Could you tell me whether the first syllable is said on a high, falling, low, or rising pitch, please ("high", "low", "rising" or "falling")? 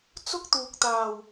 high